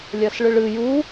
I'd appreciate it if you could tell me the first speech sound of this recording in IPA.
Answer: lʲ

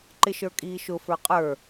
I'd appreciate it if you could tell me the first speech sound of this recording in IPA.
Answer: ǃ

